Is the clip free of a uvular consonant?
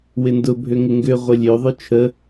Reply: no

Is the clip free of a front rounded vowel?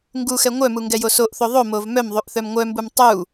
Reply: no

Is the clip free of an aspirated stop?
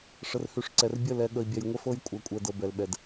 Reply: yes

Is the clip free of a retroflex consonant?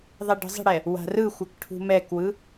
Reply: no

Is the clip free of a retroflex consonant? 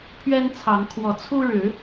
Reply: no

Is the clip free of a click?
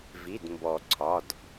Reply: no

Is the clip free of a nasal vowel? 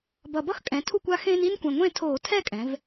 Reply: no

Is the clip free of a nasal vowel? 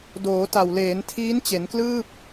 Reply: yes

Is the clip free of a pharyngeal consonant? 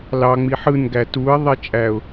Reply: no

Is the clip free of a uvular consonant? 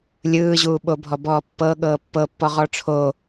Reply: no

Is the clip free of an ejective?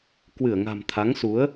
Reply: yes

